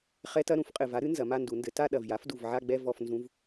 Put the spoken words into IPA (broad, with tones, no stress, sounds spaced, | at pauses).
χ ɛ˧˥˧ t ɐ˥˧ ɾ ũ˦˥ f qʼ ɘ˨˩ v a˩˥ ɾ ɨ˩˥ n z ɐ˩˧ m a˥˧ n d u˩˧ n d ɘ˩˥ t a˥˧ ɗ ɐ˨˩ v j a˩˥ f d u˨˩ v ʕ a˥˧ ɡ͡b ɛ˥˧ v ɔ˥˧ f n z ũ˧˥˧ v